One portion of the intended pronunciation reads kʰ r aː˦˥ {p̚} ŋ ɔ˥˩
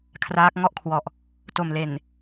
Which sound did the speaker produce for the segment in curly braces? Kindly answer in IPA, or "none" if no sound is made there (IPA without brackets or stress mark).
k̚